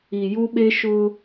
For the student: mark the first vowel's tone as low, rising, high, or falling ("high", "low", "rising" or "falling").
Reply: low